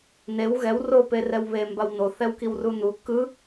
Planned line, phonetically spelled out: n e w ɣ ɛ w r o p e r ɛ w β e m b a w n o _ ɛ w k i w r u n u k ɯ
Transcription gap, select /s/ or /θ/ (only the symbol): θ